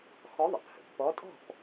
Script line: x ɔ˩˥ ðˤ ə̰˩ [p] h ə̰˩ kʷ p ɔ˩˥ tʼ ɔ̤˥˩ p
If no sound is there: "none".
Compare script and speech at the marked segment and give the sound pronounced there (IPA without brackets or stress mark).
p